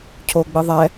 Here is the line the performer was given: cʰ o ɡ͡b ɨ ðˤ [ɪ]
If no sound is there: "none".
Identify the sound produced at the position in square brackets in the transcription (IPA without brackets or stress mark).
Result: ɛ